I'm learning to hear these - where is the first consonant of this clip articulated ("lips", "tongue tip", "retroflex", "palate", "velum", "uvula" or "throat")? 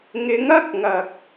velum